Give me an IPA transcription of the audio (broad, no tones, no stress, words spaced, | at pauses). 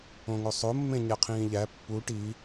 õŋosˤo mːẽɲæqʰĩːʎæ pːu ʈi